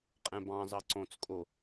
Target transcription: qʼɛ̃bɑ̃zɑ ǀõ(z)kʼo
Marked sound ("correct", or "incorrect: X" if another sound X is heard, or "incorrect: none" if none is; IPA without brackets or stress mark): incorrect: t͡s